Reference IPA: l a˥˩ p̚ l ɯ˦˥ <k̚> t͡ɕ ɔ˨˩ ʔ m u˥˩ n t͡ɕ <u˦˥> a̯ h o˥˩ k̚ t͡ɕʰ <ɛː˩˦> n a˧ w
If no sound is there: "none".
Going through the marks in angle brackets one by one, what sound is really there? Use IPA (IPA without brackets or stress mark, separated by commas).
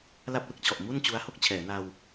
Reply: k̚, u˦˥, ɛː˩˦